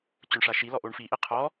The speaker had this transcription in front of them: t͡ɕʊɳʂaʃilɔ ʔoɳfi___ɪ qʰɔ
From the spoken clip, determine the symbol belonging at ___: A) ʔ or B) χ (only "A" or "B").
A